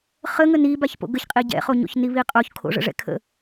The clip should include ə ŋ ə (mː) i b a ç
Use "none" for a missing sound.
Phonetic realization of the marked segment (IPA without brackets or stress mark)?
n